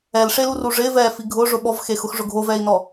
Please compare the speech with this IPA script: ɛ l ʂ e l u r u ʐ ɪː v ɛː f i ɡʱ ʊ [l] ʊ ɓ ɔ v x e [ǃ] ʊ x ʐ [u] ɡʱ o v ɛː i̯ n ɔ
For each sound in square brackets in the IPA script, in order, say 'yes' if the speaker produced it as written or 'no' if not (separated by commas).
no, no, no